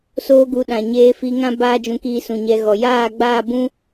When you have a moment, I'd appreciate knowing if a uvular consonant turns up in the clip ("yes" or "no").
no